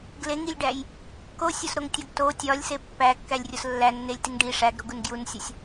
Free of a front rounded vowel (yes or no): yes